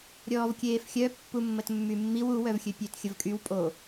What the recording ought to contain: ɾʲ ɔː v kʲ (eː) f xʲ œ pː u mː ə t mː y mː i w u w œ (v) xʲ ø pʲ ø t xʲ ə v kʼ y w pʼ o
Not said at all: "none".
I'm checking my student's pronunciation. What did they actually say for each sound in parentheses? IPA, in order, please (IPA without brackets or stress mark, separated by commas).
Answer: eː, v